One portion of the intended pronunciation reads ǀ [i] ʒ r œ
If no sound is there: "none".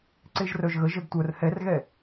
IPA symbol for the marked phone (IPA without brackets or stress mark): e